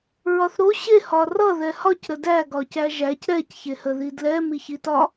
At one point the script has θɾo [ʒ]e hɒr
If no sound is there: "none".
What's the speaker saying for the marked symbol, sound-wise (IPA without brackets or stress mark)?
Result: ɕ